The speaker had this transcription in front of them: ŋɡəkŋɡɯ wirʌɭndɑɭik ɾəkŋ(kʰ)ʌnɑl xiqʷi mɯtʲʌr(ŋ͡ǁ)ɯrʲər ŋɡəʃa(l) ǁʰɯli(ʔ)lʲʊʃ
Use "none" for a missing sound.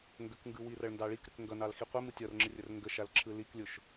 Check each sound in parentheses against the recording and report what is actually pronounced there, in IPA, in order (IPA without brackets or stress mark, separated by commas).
ɡ, ŋ͡ǁ, l, k